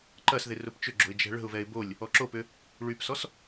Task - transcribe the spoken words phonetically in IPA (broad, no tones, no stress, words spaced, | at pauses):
ǃɐsðɪ rʊpt͡ʃʏɡ͡ǁo̤ɪ̯ d͡ʒɛ̤ɭə̤ʊ̯vɛɪ̯ bolʲ | ɔǁopʏ | ɭypsɔs